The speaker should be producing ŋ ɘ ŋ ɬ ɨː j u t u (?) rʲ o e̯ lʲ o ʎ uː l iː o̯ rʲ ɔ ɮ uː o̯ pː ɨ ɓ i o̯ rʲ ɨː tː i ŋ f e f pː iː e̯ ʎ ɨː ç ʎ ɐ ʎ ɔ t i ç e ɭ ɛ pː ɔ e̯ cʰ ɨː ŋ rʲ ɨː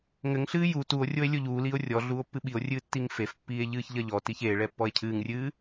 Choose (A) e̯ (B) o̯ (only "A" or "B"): B